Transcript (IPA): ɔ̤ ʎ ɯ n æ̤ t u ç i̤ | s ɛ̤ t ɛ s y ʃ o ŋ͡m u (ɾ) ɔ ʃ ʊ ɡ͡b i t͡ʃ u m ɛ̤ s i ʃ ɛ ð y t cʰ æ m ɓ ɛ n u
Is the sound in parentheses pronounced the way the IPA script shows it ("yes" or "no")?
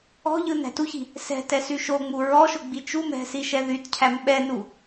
no